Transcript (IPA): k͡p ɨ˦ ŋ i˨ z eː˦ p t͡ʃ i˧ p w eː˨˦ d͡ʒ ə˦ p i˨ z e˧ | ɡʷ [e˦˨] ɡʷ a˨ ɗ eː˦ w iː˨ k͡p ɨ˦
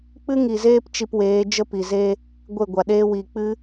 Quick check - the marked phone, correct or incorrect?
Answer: correct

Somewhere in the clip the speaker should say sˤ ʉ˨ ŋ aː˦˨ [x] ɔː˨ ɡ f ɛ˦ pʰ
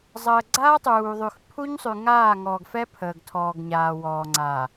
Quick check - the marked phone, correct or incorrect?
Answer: incorrect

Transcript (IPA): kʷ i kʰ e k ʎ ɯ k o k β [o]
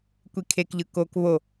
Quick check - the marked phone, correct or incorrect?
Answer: correct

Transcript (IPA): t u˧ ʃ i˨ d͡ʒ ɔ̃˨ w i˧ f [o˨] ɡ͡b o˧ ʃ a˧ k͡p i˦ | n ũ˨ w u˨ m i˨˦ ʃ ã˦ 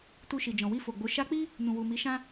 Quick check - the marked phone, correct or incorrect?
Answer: correct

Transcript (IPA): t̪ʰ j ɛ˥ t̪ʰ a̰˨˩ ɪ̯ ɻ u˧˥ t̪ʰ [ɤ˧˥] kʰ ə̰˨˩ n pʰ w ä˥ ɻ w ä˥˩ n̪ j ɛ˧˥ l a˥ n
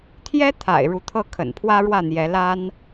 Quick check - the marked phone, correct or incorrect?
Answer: incorrect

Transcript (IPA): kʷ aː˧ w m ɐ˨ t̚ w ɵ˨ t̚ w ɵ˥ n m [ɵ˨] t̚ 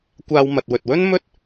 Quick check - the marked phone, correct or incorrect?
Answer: incorrect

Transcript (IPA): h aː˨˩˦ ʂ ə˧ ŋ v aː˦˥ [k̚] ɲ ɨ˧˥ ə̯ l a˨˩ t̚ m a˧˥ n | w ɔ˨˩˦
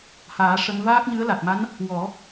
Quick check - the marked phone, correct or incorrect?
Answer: correct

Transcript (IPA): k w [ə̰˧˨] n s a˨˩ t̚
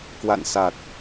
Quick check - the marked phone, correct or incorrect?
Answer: incorrect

